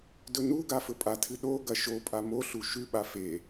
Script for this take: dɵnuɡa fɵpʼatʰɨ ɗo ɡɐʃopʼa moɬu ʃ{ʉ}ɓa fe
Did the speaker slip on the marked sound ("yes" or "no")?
no